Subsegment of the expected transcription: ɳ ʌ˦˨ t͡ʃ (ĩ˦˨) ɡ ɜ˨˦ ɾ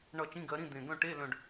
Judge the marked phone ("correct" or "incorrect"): incorrect